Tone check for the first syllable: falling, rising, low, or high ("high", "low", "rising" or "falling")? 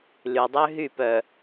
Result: low